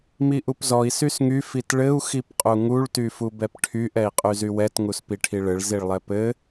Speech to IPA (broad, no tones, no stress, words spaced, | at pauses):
miʔupzɔi̯ sysŋy fitɭɘu̯ xipqʼuŋuɭ tyfubɛpʈʰyʔ ɛi̯qʼyzywɛt ŋuspiʈʰiɭɘɭ ziɭlˠɛpɘ